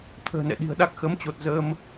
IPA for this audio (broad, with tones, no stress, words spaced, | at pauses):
t̪ʰə̤ː˨˩nɛ̰˧˨ɗi̤˨˩ə̯ɗa˦˥k̚ xə˨˦mt͡ɕo˨˩t̚ zə˧m